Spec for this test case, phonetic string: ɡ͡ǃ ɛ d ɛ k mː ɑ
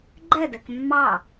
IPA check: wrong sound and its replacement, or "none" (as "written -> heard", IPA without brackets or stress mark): none